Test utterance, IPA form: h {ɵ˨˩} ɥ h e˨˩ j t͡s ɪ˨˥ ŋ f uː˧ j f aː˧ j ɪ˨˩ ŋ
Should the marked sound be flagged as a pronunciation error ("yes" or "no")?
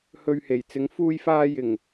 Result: yes